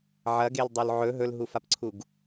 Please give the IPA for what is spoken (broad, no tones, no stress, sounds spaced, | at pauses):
ʕ ɐ ɡ e l dˤ o l ʕ ɵ ɦ ɵ l ɦ u f a p ǀʰ u ɡ